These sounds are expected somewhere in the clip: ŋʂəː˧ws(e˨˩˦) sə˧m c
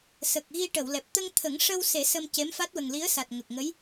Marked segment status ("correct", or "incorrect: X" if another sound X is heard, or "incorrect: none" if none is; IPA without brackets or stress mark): correct